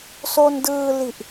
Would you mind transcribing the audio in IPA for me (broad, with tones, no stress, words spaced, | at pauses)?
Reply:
so˧ndɯː˧ li˨˩ʔ